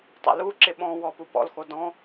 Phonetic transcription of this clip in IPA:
tˤɛ̰luǁɪ ɓɔ̃wɔ pupɔ̰lxo dɔ̃

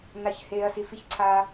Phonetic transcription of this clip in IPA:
na˧ç heː˧ɐ̯si˨fi˦çǀʰaː˧

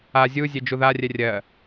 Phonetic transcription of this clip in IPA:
a zʲu zʲed͡ʒuða rʲɛrʲɜ

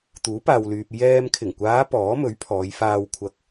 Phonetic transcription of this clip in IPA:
t̪uː˨˥paː˨wlyː˨p̚ jɛː˧m kʰɪ˨˩ŋkʷaː˨˧ pɔː˨˥mɵ˨˥ɥpʰɔː˨˧jfaː˧w kʷʰɐ˧k̚

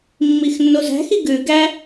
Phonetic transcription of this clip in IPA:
mːixnːozæ̤xi ɡʉɡæ

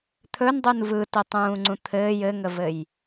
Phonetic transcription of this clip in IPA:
t̪ʰɵndˤun vɯtɘtˤũː ŋ͡ǀũt̪ʰɘː jɘŋəvɘj

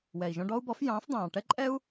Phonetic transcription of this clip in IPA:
wɛ˩i̯ʒõ˧ ɖɔ˧u̯ bɔ˩˥fjɑ̃ː˩˥fd̪ɑ̃ː˩ ʈɛ˥ǃʼɛ˥u̯

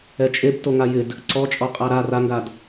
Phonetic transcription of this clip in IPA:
ɛt͡ʃʼeb toŋajɪd | ǀɔ t͡ʃʼɔqʼaɾa raŋɡad

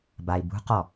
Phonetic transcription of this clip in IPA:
bai̯bṳqɔ

